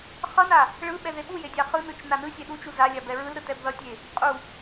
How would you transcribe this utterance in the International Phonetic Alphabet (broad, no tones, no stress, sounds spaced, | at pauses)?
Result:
χ ʌ n a | ɭ ɯ ɓ ɛ ð e ɓ u j e dʲ a χ ɯ n ɯ t͡ʃ n a n ɯ sʲ e ɗ u t͡ʃ u z a lʲ a b ɛ ɹ ɯ l ɾ ɯ t ɛ b ð ʌ tʲ e | qʼ u